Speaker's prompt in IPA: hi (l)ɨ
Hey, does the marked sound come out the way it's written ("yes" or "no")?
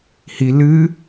yes